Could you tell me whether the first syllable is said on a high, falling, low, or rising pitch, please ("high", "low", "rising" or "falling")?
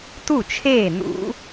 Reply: falling